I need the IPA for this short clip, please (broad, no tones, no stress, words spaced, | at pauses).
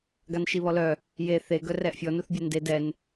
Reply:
ɡanʃiβɔlœ | je θe ɡœrɛʔfʲɔ nuθbʲɛnde dɛn